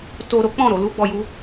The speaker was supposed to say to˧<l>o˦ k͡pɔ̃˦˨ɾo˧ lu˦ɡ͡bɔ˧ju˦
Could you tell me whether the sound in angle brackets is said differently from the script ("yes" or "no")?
yes